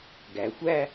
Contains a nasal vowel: no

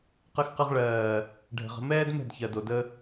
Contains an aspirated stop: no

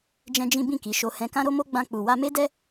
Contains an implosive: no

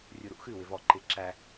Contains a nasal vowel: no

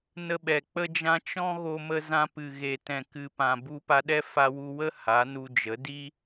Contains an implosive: yes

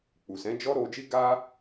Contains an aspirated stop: no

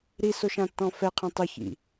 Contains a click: no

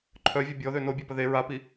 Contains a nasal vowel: no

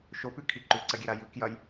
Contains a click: yes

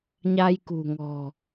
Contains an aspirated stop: no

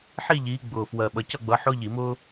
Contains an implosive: yes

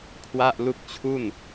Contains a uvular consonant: no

